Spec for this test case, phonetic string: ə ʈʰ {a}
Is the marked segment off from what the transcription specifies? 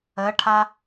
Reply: no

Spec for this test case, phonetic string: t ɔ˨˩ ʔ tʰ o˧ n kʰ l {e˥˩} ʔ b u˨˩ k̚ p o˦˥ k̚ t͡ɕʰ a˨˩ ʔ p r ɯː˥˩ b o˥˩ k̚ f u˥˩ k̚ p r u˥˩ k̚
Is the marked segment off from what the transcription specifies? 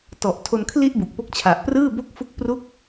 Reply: yes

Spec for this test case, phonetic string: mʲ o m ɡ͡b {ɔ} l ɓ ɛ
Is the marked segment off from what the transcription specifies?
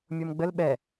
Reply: yes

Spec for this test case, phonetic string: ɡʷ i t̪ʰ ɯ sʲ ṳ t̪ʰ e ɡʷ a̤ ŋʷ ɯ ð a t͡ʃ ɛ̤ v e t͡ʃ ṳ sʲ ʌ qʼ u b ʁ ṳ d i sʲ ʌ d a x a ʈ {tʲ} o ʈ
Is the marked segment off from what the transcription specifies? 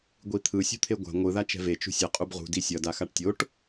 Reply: no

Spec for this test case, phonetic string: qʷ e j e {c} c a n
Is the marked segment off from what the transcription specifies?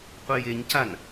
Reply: yes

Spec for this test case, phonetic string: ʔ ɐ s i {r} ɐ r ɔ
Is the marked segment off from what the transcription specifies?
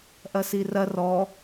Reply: no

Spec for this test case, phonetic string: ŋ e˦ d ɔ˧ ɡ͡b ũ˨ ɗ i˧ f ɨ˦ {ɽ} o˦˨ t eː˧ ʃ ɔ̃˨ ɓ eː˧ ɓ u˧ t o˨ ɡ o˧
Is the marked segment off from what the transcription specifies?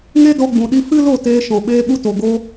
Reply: yes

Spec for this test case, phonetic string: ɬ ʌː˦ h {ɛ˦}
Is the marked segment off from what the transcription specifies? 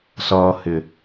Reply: yes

